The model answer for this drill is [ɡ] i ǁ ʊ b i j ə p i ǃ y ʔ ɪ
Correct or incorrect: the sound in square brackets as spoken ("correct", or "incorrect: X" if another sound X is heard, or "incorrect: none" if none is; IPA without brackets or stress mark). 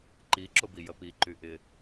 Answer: incorrect: ǃ